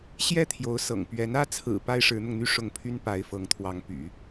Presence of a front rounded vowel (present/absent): present